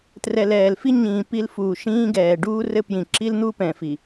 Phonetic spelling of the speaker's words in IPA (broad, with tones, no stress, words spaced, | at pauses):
trɛ˨lɛː˨lfi˦ɲĩː˨ pi˦lfuː˨ ʃĩː˦ɡɛː˨ ɖuː˦rɘ˦pjĩ˨ ǁi˦ln̪u˦pɛ̃˨ fi˨